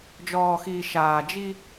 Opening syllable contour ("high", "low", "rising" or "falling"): low